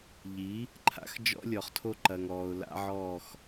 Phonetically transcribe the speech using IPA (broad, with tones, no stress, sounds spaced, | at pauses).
ʎ i˨˦ | ǃʰ a̰˨ x d͡ʒ ɔ̰˦ lʲ ɔ˨ χ tʰ o˦ ǃ ɐ˨ ŋ ɔː˨ ʊ̯ l a̰˦ ʕ ɔː˦˨ x